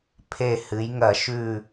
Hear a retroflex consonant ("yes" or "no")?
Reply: no